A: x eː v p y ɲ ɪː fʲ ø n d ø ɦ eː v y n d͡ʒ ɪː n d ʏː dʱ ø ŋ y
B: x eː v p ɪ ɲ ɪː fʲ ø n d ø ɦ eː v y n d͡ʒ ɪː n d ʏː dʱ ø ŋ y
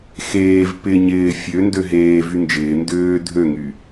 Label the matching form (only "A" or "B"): B